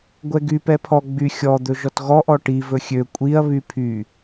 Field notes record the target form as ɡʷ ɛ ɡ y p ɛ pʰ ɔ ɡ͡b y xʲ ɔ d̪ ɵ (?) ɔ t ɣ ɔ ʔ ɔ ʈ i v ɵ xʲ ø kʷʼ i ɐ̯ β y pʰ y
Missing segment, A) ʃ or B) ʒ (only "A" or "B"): B